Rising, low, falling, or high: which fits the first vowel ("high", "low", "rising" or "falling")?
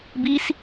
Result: high